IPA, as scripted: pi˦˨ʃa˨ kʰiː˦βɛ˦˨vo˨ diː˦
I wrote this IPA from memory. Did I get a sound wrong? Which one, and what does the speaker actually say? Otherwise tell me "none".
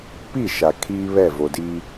none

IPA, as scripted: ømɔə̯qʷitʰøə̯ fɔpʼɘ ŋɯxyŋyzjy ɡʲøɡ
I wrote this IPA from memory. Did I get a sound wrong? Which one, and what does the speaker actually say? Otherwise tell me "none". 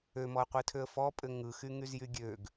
none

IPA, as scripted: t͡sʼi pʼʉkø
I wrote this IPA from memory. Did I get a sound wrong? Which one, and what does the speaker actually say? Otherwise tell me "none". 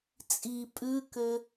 none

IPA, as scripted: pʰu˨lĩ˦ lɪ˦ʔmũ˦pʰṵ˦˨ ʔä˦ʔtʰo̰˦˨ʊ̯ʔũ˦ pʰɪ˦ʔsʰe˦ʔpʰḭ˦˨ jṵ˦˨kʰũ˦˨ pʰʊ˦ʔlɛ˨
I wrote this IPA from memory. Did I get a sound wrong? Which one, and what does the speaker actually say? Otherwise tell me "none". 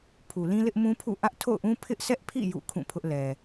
e˦ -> ɛ˦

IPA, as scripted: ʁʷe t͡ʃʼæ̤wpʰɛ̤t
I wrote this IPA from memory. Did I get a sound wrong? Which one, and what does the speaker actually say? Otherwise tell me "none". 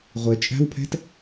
none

